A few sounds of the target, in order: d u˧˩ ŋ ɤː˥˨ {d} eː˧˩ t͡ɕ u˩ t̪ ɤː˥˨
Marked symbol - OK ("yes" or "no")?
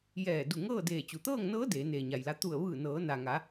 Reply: yes